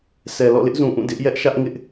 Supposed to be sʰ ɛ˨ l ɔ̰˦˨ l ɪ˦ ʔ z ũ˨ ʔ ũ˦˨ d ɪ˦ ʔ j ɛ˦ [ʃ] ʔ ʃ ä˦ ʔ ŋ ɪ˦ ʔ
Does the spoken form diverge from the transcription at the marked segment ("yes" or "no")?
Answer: yes